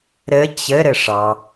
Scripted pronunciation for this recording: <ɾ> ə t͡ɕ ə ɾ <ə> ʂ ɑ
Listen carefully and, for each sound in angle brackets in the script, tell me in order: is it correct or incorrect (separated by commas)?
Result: correct, correct